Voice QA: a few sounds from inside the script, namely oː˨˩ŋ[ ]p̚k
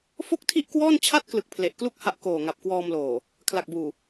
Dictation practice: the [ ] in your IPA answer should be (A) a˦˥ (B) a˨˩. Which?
B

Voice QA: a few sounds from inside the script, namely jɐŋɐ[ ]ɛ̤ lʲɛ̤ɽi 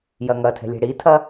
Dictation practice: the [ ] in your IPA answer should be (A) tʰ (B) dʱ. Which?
A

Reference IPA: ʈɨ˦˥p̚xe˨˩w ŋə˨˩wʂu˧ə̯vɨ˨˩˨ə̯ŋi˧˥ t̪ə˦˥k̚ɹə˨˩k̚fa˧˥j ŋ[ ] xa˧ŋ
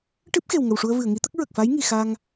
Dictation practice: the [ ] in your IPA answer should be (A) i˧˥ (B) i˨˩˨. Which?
B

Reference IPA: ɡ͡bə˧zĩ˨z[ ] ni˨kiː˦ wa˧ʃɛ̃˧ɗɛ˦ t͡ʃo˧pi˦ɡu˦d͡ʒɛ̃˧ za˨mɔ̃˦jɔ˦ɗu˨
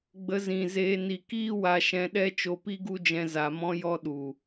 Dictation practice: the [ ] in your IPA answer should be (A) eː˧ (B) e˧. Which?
A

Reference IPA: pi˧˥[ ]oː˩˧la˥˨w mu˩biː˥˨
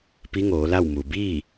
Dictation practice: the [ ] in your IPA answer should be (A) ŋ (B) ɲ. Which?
A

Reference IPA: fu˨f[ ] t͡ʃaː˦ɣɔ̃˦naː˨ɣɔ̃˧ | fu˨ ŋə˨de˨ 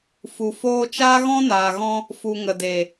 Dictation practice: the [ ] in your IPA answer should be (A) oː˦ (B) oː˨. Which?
A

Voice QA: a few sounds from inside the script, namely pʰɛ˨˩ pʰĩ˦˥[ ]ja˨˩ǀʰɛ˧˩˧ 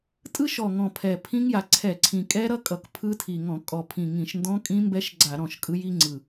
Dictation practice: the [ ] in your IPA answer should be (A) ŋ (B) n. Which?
A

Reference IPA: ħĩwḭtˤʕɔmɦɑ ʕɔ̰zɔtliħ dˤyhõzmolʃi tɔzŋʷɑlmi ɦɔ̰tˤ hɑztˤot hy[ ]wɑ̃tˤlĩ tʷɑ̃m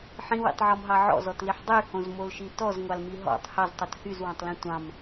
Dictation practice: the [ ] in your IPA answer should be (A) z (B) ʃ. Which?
A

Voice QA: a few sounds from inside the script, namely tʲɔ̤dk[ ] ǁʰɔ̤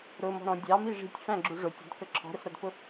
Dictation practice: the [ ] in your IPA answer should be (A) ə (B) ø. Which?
A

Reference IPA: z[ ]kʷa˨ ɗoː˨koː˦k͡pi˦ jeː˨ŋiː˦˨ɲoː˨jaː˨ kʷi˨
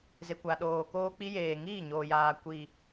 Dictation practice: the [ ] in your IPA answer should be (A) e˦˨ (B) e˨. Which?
B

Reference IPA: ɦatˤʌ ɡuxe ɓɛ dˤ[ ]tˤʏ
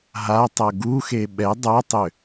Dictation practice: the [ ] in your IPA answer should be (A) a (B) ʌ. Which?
A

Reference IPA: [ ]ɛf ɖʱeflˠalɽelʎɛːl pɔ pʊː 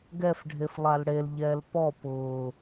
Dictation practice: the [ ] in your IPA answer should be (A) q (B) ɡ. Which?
B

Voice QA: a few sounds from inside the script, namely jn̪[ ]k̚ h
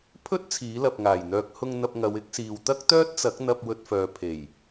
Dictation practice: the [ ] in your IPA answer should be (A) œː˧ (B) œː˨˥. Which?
A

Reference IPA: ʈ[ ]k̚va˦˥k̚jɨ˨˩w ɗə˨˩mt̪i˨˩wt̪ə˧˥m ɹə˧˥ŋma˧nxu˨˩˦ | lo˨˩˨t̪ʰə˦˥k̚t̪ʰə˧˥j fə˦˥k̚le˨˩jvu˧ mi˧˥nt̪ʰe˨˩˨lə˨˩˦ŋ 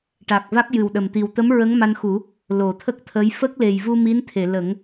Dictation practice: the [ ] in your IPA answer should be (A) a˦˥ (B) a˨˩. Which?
B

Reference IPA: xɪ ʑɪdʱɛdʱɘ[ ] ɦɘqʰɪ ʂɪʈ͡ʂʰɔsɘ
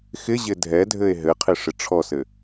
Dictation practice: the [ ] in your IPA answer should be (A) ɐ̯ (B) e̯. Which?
B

